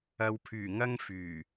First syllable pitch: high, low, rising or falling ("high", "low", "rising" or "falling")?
low